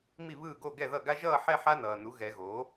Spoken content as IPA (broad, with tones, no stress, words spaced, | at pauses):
mi˥˩βɯː˥˩ ɡo˥˩ɡɛ˥˩ðʌ˥˩ ɡa˥ʒʌː˥˧ħɛ˥˧ ħa˥nʌː˨nu˩˥ ɣɛ˨˩˦ɣoː˩˥